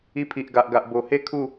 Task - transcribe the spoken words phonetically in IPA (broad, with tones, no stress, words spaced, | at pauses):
i˧pʰi˨ʔɡa˨ʔɡa˨ʔ bo˨˩he˥˧ kʰu˥˧